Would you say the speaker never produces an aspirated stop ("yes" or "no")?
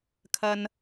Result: no